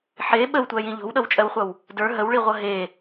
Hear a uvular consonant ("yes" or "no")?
yes